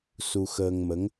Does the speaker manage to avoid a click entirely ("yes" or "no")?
yes